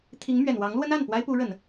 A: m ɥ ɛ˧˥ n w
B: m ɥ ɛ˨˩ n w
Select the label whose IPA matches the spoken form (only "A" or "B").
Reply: B